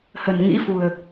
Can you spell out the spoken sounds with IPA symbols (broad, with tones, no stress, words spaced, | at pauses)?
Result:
hə̤˨˩nŋḭ˧˥fṳ˨˩ə̯